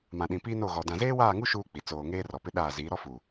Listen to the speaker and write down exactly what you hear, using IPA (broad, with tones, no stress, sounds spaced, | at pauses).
m ã˨ ɗ ĩ˨ p iː˦ n o˦˨ ɣ ɔ˨ d ã˨ z eː˦ w aː˦˨ ŋ u˦ ʃ uː˦ k͡p i˨ t͡s oː˨ ŋ eː˦ r ɔ˨ p ɪ˦ ɗ aː˦˨ z iː˨˦ ɾ ɔ˦ f u˨